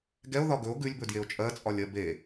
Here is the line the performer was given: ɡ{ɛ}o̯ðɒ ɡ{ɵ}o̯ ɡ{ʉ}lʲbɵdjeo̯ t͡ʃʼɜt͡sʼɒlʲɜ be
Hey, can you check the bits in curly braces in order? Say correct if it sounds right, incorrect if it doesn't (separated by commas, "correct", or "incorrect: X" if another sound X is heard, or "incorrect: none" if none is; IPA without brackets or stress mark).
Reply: correct, correct, correct